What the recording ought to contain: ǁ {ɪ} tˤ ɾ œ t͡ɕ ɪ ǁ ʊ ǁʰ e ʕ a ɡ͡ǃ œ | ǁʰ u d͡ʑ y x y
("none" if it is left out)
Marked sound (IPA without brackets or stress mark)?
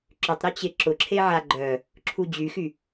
ʏ